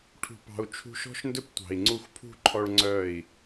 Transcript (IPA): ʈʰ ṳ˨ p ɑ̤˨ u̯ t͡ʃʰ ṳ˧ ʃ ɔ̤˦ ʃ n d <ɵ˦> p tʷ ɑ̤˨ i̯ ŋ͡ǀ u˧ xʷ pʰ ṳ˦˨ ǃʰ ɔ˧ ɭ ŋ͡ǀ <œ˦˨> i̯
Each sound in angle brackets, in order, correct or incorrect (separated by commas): correct, correct